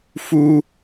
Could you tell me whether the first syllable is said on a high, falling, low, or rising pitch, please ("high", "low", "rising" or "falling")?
high